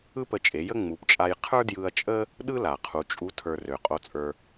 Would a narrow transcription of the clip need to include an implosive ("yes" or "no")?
yes